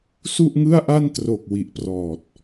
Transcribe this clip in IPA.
su˥˩ʔŋɯ˥˩a̯ʔa˥˩ntro˨˩k̚ wi˨˩ʔprɔː˨˩t̚

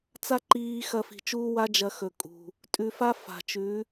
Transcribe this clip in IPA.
t͡sa˦ǃiː˧ xɐ˧fi̤˨ t͡ʃuː˦wa˦ d͡ʒɐ˧ xɵ˨ kʼṳ˨ | tʼʉ˧fa˦ fa̤˨t͡ʃʉ˨˦

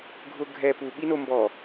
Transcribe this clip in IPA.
ɡʱʊ ɡʱɛ pu ɓinombɔ

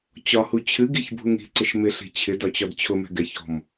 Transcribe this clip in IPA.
t͡ɕɒhu t͡ɕʰɨɡiçbʱuŋ i̤ǀɪʃ mɪɬi̤ t͡ɕʰɪdɒt͡ɕɒd t͡ɕʰʊmɛ̤ ɡɛçɔ̤m

